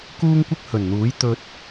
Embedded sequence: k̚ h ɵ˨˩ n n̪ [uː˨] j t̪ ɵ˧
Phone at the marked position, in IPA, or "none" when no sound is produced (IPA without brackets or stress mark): uː˨˥